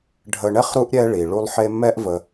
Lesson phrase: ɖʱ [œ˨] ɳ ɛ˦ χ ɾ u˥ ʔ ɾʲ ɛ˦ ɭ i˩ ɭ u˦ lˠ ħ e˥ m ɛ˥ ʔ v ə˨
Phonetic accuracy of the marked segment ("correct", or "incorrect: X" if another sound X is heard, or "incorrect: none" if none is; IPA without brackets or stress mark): incorrect: ə˨